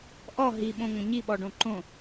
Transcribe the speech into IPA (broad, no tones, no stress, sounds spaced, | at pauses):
ʔ ɔ ɦ i ɓ õ ŋʷ ə̃ ɲ i ɓ ɔ ɖ õ ǃ õ